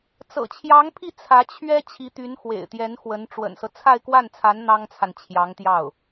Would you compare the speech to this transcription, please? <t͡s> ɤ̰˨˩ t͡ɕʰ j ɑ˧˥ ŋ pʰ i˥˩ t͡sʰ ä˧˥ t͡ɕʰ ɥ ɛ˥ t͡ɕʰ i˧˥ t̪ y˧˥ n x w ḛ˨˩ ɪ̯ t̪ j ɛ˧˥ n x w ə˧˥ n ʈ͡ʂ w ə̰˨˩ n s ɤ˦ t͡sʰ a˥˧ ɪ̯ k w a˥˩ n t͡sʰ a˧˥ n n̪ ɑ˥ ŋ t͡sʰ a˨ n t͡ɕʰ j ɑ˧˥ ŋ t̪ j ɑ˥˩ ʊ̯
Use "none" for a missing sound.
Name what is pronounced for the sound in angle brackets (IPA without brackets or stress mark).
t͡s